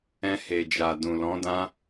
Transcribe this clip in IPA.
ɛ̃˧ h e˨ d͡ʒ a˨ d ũ˨ l ɔ̃˨˦ d ã˦

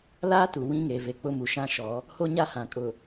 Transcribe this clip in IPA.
l aː˦ t u˨ w ĩ˦ ŋ eː˨ v e˨ k͡p ʊ˦ m u˨ ʃ ã˦ ʃ ɔ˨˦ | h o˦ ɲ a˦ h ã˨ kʼ ʊ˨

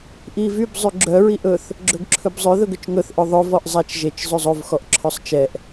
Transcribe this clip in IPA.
ʔ i v y b zˤ y ɡ͡ǁ œ ɹ i ʔ ɵ θ | ɡ͡ǁ ɵ ɡ ǁʰ ɵ b zˤ ø ð ɵ ɡ ɵ t͡ʃ ŋ ɵ θ ʔ ɵ ðˤ ɵ v ɔ ʔ zˤ æ t͡ʃ ʒ e t͡ʃ zˤ ʉ zˤ o v x ɔ ʔ ǁʰ œ sˤ t͡ʃ ɛ ʔ

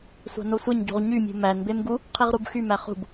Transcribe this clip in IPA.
sʷ ɑ̤ n o sʷ e ɲ ɟ ṳ ʁ ɲ y mʲ ṳ m æ n b e m ɡ u | qʰ i ʁ ɾ u b x y m æ χ ṳ b

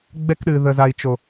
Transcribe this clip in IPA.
ɡ͡b ɛ˧ k ɗ ɨ˨ ð ə˨ z a˨ i̯ t͡ʃ o˨

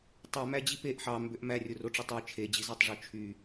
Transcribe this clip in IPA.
tˤ ø m æ d͡ʑ i p e ʔ ħ ɑ m b ø ʔ m æ rʲ o r o ʈ͡ʂ e tˤ ø t͡ʃʰ e d͡ʑ i z ɑ tˤ ʐ u t͡ʃʰ y

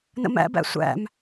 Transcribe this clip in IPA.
n ə̰ m æ̰ b æ̰ sʷ æ̰ m

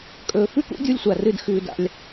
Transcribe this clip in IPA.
kʼ ɵː˨ f ʉ˦ k ṵ˦ dʲ u˦ lʲ sʷ a˨ r ɨ˦ d x ʉː˧ d a̰˧ lʲ

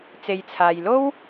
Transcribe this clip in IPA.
t͡s e˧ j t͡sʰ aː˧ j l o˥ w

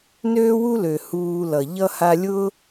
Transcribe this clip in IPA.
n øː˦ w u˦ l ø˨ h uː˧ l ʌ˨ ʎ ʌ˧ h a˧ lʲ ʊː˦

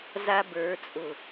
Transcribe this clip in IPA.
z a˦ b ə˞˨˦ t͡sʼ ʊ˨

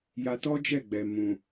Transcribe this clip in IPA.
j a˧ t ɔ˦ d͡ʒ ɛ˦˨ ɡ͡b ɛ˨ m ũ˨

